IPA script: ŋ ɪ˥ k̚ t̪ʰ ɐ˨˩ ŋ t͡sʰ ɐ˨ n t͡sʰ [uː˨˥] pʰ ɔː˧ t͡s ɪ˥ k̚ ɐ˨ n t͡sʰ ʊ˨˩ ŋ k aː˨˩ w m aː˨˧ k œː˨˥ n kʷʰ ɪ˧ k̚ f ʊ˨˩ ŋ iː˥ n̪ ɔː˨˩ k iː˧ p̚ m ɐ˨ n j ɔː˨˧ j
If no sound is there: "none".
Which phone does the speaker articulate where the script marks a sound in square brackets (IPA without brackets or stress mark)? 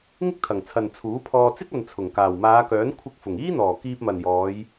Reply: uː˨˥